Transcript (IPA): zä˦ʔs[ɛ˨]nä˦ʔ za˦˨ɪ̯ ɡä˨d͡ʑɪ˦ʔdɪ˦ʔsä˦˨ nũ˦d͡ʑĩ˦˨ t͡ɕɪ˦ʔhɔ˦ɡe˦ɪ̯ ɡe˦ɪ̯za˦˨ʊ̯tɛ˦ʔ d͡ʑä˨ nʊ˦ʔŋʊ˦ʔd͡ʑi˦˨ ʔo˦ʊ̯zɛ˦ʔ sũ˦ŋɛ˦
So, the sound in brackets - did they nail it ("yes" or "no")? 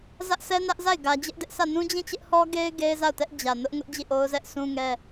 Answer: no